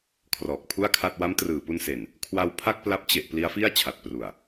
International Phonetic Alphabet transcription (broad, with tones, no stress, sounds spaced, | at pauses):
kʰ r ɔː˨˩ k̚ pʰ u˥˩ a̯ kʰ a˥˩ t̚ w a˦˥ m t r ɯː˨˩ p u˧ n s e˨˩ n | kʰ w a˧ w pʰ a˥˩ k̚ p l a˦˥ p̚ t͡ɕ e˨˩ ʔ p l i˦˥ a̯ f i˥˩ a̯ t͡ɕʰ a˨˩ t̚ p r u˨˩ a̯